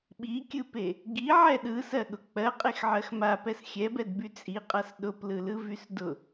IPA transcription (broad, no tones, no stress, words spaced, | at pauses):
ɓikʲɯpe | ɡiʕɛ ɗɯsɜɠʊ k͡pɜqʼexʕɜx mapɛs xʲɛbɛdby t͡sʼiqʼas ɗʊplɯlɯvys dʊ